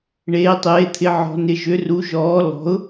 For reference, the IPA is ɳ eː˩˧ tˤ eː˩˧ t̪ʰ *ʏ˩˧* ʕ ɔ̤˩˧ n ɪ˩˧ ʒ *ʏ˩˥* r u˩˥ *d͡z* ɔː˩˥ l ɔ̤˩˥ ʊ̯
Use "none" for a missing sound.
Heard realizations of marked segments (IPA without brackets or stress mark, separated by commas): ɪ˩˧, ʏ˩˥, ʒ